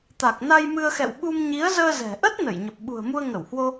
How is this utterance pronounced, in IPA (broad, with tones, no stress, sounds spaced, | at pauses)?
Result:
t̪ a˨˩ k̚ n a˧ j m ɨ˧ ə̯ x ɛ̰˧˨ w ɓ u˧ m ɲ i˨˦ ə̯ z əː˧ z ɛ̤˨˩ ʔ ə˦˥ t̚ n ə˧˩ j ɲ ə˨˩ p̚ ɓ ṳ˨˩ ə̯ m u˧ ə̯ ŋ ə˧˩ w h w o˧